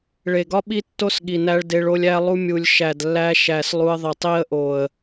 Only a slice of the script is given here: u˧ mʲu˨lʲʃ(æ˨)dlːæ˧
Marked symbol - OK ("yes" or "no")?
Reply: yes